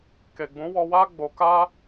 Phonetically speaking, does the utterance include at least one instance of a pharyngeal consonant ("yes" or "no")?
no